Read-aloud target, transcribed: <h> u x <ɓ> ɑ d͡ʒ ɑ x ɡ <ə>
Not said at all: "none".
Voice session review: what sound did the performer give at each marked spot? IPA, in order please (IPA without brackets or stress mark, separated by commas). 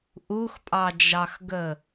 ʔ, pʼ, ə